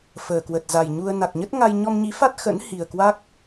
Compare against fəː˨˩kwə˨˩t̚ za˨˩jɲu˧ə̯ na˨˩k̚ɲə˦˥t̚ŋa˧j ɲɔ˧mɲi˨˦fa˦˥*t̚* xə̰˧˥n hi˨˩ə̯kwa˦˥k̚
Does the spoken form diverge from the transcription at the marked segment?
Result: no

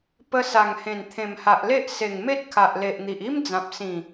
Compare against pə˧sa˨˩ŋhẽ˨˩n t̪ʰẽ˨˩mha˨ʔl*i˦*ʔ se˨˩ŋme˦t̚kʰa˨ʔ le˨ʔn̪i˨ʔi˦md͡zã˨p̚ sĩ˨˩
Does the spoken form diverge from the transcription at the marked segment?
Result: yes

